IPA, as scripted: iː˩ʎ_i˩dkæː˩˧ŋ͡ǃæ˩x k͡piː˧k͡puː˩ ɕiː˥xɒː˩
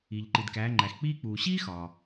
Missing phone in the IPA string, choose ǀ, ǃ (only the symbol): ǃ